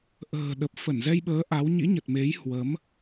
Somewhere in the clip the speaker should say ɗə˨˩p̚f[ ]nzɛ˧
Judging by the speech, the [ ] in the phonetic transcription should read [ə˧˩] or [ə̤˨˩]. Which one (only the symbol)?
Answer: ə˧˩